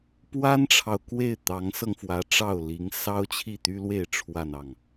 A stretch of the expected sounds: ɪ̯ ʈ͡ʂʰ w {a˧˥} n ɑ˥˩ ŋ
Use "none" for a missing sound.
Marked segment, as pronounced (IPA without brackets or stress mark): a˥˧